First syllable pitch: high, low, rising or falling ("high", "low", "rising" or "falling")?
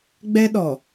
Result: high